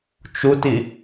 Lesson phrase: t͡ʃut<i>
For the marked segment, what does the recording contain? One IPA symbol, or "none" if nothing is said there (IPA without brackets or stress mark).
i